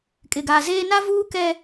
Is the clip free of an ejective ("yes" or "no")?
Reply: no